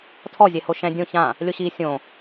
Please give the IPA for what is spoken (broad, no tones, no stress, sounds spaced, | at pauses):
tʰ ɔ zʲ ɛ h o ʃ ɛ̃ dʲ õ ç ã | lʲ o ɕ iː sʲ õ